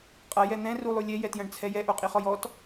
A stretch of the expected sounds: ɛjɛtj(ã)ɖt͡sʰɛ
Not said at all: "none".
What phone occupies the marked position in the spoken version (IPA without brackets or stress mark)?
ɐ̃